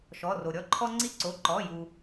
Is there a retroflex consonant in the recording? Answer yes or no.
no